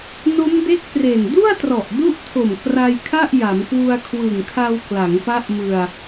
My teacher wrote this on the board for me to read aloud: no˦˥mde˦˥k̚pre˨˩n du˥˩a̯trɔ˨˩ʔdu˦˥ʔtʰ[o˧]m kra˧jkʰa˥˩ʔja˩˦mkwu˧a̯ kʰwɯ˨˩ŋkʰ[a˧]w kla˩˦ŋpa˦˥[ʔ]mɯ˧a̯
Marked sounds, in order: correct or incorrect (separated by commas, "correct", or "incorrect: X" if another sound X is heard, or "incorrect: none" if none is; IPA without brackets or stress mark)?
incorrect: o˨˩, correct, correct